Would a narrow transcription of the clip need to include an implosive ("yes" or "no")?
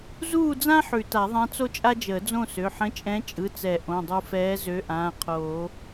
no